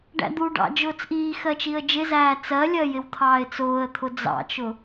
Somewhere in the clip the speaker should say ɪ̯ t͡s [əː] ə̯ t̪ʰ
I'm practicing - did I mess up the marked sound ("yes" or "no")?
yes